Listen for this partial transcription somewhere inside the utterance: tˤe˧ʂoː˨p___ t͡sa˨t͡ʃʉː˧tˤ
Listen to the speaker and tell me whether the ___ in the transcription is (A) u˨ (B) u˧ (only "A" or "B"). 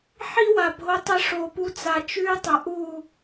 B